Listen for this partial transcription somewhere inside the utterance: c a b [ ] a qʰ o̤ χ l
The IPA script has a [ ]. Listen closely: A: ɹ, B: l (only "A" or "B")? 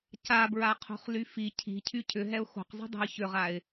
A